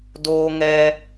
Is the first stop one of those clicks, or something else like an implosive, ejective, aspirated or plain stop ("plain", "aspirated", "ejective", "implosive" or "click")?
plain